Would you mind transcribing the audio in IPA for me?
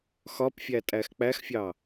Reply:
x ɒ p fʲ æ tʼ æ x k͡p æ x fʲ ɑ

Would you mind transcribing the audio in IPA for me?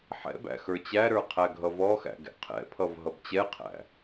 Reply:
ħ ɛ̰ b æ̰ x ə˞ t͡ɕ æ ɾ ə˞ qʰ æ ɡʱ ʌ v ɔ x æ̰ ɡ ɛ̰ qʰ ɛ̰ pʰ ʌ v ɦ ʌ b t͡ɕ ɛ qʰ æ̰

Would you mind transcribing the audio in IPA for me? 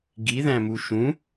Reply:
ɡ i ð æ̃ m u ʃ ũ

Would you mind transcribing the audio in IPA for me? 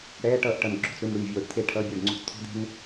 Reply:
ɽ ɛː˧˥˧ ʈ ʌː˥˩ ʔ ʈ ʌ˧˩ n ɡ͡ǁ o̤˧˩ t͡s ɽ ʉ˧˩ n ɽ ʉː˧˩ vʲ oː˧˩ ɖ t̪ʰ e˥˩ ʈʰ ʌː˧˥˧ bʲ ʌː˥˩ ɖ ŋ͡ǀ o̤˥˩ t͡s t̪ʰ o̤˥ d̪ e̤˥ n

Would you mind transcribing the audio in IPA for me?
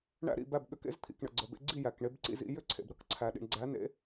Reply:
ɳ æ̰˥ ɾ ḭ˥˩ b æ˥˩ b ɠ ʏ˧ k ḛ˥ z t̪ʰ ḭ˩ k ɳ ə̰˩ ɡ͡ǀ ə˩ b ḛ˧ ɡ͡ǀ i˥˩ j æ˩ k ɳ e˧ b ǀ ḭ˥˩ z ḭ˧ j ʏ˥˩ ǀʰ ḛ˩ b ɾ ə˥˩ k ǀʰ æ˩ ɗ ḭ˩ ɳ ɡ͡ǀ æ˩˥ n ḛ˩˥

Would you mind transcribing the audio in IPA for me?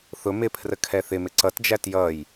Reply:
θ ʊ m ɪ pʰ r ə kʰ ɛ θ ɪ m ɪ ǀ ʌ t d͡ʒ æ t j ʌ j

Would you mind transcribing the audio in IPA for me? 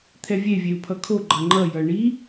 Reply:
t̪ʰ ɛ vʲ e vʲ e u̯ pʰ ʌ kʰ o ɡ͡ǃ ʌ ŋ͡ǃ ʌ j ʌ ɳ i

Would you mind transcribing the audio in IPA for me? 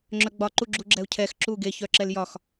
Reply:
ŋ͡ǁ œ ɡ͡b ɒ ǃ u ɡ͡ǁ u ɡ͡ǁ ɛ u̯ cʰ ɛ x ǁ u ɡ e ç œ ǁ ɛ l j ɒ x

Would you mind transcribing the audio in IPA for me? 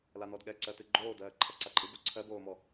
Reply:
l a n ɔ d ɠ ɛ ǀ ɜ t ɨ ɡ͡ǃ oː d ɜː ǃʰ a ǀ a ǃʼ ɨ b o ǀʰ ɜ b oː m ɔ

